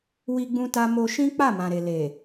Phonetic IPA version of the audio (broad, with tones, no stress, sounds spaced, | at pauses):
w i˦ ɡ͡b ũ˦ t a˦ m o˧ ʃ ĩ˦ k͡p a˦˨ m ã˨ ɾ e˨ l e˨